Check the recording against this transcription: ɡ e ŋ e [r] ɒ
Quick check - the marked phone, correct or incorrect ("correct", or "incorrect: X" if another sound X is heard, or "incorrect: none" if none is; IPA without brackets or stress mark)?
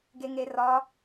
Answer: correct